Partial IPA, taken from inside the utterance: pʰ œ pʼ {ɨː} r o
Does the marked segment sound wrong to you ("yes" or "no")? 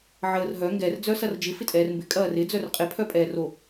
yes